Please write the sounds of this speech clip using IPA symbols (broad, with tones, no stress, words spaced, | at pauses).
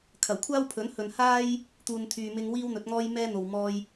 kʰɐ˨˩wkʷʰaː˥wpʰɵ˨˥nhɵ˨n haː˥j | t̪uː˨n t̪ʰyː˨mɪ˧ŋ wiː˥wn̪ɵ˨˥t̚ŋɔː˥j mɛː˥n̪o˨w mɔː˧j